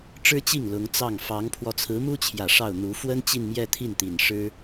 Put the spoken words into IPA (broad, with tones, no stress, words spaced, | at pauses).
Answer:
ʈ͡ʂɻ̩˥t͡ɕi˥˩ŋ lʊ˧˥ŋt͡sɑ˥˩ŋ fɑ˧˥ŋpʰwɔ˧ t͡sʰɹ̩˧˥mu˥t͡ɕʰjä˨˩ ʂɑ˥˩ʊ̯n̪u˧˥ fwə˥n t͡ɕi˥˧nmjɛ˥˧t̪ʰi˥˩n t̪i˨˩nʂɻ̩˥